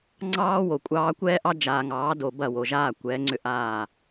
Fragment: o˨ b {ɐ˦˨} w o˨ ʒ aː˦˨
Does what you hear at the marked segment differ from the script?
no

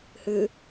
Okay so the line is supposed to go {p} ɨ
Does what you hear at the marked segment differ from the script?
yes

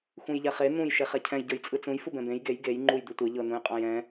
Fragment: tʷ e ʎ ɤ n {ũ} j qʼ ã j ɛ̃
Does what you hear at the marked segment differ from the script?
no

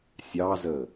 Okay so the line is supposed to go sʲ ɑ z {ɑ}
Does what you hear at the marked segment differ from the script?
yes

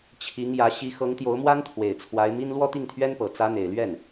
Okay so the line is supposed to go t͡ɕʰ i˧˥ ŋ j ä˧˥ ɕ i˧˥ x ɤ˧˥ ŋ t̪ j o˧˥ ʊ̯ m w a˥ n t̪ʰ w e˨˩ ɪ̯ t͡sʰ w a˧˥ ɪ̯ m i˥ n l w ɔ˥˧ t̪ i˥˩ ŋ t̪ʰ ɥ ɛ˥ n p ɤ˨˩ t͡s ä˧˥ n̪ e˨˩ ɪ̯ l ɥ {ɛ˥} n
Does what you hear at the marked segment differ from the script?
yes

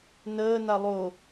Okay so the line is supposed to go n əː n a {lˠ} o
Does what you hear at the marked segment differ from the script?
no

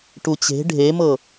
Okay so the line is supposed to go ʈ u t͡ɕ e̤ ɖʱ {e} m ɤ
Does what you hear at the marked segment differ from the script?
no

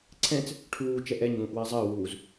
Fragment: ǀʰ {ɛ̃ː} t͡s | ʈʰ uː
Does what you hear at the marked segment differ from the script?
yes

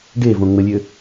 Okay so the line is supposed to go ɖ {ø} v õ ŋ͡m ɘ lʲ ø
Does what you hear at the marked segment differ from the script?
yes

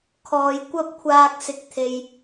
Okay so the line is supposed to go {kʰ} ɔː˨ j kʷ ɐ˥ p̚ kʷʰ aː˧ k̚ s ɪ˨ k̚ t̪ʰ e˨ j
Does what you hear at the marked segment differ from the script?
no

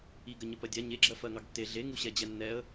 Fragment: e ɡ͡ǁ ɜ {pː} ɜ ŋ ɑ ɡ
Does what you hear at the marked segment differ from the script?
yes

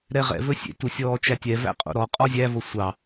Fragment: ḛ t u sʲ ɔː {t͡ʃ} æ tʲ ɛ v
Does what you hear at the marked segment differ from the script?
no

